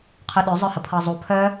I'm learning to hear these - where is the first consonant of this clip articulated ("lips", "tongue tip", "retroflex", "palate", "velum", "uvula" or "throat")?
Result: uvula